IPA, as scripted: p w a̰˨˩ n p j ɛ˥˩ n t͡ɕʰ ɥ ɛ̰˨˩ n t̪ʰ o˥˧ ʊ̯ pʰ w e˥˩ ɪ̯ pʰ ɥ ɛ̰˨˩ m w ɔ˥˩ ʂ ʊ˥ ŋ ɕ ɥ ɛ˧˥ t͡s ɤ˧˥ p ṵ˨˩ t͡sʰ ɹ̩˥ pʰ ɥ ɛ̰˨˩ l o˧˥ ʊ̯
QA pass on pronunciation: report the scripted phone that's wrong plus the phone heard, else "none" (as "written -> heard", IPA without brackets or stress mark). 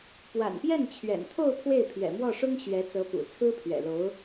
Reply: none